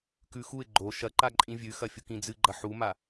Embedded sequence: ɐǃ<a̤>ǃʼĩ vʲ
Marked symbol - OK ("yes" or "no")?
no